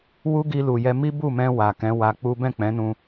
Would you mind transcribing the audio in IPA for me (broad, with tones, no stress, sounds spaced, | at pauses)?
w u˦ ɡ i˧ l u˨ j ɛ˧ m i˦ b u˦˨ m ɛ̃˧ w a˨ k ɛ̃˨˦ w a˧ k͡p u˦ b ɛ̃˦˨ k͡p ɛ̃˨˦ n ũ˧